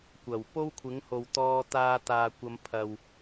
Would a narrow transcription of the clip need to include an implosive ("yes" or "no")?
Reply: no